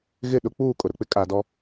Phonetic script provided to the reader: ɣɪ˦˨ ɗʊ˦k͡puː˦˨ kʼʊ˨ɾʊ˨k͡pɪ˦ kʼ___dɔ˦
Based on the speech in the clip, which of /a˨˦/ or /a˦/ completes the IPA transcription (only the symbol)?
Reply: a˨˦